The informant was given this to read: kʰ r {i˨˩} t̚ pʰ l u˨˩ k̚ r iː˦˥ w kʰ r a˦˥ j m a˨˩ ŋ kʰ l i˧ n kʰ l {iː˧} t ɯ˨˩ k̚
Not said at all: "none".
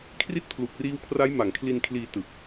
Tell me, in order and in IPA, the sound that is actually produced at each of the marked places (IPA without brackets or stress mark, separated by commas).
i˥˩, iː˧